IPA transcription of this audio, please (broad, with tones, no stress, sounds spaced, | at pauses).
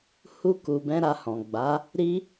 h u˧ k u˨ b ɛ̃˧ ɾ a˧ h ɔ̃˨ ɡ͡b a˨˦ | ɾ i˦